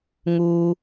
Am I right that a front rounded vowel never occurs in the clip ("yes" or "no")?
yes